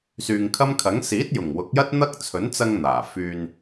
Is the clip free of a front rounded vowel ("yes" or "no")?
no